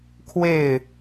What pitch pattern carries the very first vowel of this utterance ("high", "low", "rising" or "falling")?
falling